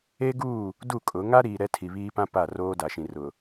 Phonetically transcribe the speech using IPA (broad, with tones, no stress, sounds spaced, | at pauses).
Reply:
e˦ ɡ uː˦˨ | d u˦˨ kʼ ʊ˨˦ ŋ a˦ ɾ iː˨ ɾ ɛ˦ tʰ i˨ β iː˦ p ã˦ p a˦˨ r oː˦ d a˨ ʃ ĩ˨ r ʊ˨